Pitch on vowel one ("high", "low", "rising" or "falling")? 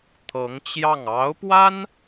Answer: rising